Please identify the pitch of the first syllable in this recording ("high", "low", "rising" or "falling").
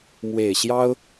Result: low